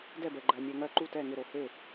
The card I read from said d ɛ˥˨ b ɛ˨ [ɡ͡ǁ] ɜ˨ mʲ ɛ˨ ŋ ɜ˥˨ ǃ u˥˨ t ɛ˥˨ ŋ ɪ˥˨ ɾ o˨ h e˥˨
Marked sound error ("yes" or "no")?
yes